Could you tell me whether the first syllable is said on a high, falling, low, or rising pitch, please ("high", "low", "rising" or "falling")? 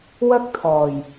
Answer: high